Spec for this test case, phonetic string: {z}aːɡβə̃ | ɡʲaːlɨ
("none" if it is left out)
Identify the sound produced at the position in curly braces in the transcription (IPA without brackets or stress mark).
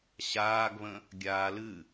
ɕ